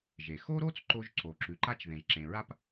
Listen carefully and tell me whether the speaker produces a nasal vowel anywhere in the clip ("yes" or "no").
yes